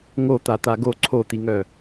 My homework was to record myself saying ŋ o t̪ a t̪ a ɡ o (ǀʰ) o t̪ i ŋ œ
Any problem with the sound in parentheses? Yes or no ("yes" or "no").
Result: no